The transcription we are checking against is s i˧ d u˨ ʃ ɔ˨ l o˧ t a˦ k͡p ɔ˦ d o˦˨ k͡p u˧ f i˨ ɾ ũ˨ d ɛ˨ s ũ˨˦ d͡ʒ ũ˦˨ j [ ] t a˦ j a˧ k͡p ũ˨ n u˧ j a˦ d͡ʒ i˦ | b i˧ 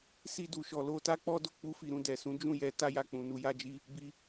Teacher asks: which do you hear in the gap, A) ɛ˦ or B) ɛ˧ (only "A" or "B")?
B